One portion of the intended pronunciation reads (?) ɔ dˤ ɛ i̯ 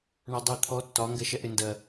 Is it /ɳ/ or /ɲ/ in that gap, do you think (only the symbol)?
ɳ